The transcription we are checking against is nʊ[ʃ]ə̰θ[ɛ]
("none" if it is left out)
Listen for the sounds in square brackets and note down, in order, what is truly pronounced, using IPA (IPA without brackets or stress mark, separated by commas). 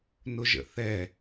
ʒ, ɛ